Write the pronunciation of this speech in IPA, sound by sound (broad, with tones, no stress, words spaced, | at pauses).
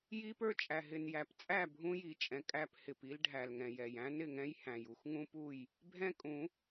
ji˦pə˞˦t͡ʃʼæ˨ ɦɪ˨njæ˨pt͡sʼæ˦˨ bʱũ˦ji˨t͡ʃʼɛ̃˨ kʼæ˦p hɪ˨pi˦lɖʱæ˨l ŋɛ̃˨jɛ˨j æ̃˦nɪ˨ŋɛ̃˦j hæ̃˨ju˦x ŋũ˦pu˦˨j | bʱɛ̃˦kʼũ˨˦